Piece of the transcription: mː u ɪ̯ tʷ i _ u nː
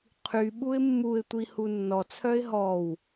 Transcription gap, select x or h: h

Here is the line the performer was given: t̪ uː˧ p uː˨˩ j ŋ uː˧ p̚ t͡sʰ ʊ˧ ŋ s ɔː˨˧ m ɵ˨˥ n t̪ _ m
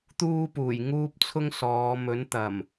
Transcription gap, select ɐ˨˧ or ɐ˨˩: ɐ˨˩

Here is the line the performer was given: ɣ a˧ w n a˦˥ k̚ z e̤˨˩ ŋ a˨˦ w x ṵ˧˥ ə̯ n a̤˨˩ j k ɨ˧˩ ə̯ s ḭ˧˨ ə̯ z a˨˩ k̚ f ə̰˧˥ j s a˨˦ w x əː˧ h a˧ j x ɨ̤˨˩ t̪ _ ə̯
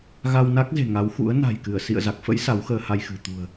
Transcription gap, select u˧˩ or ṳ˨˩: ṳ˨˩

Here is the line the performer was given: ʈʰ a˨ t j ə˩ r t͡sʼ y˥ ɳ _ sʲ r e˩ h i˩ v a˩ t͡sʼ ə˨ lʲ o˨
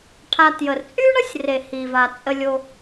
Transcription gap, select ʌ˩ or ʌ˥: ʌ˥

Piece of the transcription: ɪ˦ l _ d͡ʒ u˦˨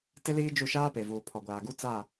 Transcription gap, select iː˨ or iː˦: iː˦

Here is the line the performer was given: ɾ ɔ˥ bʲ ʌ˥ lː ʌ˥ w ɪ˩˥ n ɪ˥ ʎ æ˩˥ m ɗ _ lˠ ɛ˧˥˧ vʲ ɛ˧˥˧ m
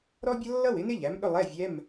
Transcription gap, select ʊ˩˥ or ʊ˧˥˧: ʊ˧˥˧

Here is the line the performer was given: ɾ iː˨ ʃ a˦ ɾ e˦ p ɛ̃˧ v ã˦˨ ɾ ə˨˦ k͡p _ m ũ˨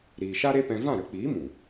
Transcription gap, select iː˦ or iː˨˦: iː˨˦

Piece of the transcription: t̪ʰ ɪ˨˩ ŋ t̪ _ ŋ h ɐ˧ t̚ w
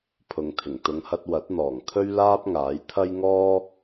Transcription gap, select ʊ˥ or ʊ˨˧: ʊ˨˧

